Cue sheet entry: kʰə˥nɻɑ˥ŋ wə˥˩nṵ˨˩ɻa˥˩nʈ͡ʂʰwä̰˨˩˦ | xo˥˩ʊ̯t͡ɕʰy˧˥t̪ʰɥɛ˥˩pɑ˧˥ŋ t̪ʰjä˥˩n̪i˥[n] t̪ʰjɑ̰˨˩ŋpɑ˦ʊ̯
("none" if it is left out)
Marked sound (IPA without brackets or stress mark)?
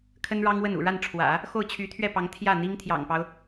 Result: ŋ